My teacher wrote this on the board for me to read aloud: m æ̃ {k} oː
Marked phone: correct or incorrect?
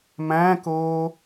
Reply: correct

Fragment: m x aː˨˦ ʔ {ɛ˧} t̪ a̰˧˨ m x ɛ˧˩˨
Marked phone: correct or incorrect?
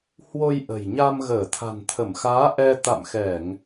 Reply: correct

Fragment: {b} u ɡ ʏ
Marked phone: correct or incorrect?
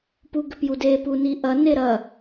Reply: incorrect: p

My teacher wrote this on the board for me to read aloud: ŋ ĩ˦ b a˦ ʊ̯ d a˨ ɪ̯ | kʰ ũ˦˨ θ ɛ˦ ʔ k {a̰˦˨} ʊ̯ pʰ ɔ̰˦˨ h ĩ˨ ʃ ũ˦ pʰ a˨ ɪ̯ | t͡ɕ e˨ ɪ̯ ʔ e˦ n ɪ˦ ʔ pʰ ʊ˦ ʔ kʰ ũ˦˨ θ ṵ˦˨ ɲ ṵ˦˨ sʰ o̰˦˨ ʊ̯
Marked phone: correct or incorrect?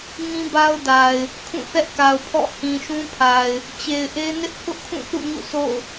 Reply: incorrect: a˨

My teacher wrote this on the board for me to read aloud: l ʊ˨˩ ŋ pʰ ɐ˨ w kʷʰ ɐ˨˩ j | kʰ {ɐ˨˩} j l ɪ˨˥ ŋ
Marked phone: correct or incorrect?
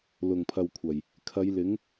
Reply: incorrect: ɐ˨˧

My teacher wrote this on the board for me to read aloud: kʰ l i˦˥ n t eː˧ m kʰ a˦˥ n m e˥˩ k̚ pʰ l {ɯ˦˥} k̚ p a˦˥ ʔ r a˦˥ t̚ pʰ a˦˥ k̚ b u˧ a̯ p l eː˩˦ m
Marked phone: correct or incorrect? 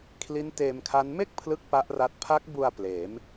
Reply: incorrect: ɯ˥˩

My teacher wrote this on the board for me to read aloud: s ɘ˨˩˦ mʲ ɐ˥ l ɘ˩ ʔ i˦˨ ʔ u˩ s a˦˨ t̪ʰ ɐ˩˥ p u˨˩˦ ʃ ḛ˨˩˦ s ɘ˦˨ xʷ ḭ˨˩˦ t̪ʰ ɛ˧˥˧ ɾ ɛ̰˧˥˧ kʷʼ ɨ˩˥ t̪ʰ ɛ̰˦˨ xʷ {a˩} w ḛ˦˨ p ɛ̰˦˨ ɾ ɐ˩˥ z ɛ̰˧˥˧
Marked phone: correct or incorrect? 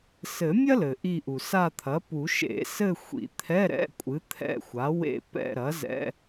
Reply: incorrect: a˩˥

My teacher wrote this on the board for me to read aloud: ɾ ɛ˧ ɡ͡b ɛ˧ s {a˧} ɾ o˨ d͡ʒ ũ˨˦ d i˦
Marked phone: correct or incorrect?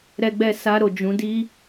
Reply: correct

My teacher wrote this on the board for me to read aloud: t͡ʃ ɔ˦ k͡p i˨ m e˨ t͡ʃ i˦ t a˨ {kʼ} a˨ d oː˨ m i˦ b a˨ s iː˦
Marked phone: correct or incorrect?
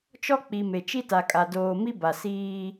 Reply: correct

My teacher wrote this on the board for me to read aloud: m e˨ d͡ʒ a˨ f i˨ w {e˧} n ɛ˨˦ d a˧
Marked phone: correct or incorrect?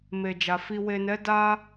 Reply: incorrect: e˨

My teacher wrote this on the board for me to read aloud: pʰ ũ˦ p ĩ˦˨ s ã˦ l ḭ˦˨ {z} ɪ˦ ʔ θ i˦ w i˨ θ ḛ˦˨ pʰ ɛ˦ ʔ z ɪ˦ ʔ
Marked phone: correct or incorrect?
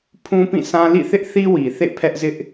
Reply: incorrect: θ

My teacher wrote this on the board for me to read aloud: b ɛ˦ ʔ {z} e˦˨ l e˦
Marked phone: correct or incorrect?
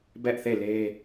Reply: incorrect: θ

